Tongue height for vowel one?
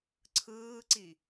high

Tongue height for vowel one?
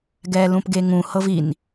mid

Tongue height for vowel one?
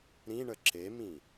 high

